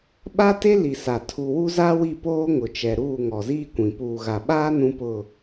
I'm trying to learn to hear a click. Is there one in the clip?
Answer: no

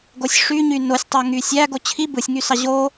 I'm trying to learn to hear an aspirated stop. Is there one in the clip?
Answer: yes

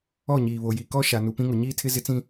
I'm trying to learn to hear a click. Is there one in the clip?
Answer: no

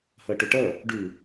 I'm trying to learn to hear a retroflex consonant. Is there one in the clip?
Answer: yes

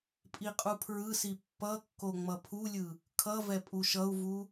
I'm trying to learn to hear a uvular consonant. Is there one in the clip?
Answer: yes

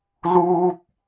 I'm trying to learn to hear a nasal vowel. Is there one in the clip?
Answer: no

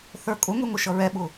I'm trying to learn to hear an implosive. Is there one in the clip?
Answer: yes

